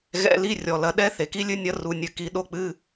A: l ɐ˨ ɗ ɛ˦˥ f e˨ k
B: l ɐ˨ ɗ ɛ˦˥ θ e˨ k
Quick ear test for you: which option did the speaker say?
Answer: B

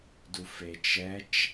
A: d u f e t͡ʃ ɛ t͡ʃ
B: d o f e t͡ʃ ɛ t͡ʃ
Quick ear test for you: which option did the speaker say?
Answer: A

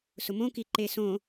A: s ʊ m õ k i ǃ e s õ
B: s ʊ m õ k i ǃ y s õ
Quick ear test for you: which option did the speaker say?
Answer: A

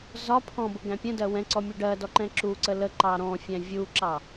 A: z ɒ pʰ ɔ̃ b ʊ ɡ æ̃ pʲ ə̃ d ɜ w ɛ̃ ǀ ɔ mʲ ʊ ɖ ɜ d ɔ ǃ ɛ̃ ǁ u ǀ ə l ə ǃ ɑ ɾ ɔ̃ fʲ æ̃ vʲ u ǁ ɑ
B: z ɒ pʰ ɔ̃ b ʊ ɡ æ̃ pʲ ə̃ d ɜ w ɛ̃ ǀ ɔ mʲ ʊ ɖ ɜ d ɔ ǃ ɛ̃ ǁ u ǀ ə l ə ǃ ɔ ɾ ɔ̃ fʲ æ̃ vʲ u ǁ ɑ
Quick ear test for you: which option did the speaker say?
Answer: A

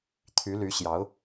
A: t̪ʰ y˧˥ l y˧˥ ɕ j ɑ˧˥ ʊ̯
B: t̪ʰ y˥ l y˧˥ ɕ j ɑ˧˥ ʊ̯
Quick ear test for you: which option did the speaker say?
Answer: A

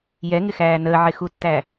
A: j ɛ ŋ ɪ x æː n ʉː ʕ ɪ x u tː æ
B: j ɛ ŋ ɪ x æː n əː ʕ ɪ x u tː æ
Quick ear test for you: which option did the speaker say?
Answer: B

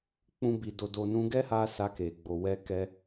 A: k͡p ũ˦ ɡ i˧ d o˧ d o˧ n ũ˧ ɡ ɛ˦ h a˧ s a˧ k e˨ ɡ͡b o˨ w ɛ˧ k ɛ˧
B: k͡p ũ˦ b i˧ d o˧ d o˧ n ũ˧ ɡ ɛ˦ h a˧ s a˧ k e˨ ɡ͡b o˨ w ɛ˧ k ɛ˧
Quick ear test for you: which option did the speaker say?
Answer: B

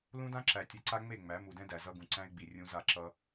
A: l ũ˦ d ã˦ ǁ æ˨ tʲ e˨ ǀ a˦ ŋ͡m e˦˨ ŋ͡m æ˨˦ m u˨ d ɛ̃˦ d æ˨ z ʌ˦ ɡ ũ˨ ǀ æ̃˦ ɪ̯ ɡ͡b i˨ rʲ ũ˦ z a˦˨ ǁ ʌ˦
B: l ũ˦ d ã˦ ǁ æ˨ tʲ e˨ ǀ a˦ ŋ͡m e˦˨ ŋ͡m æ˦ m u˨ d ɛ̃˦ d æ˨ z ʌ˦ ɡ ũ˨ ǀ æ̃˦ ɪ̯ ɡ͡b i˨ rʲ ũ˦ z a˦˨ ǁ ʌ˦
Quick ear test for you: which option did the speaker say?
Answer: A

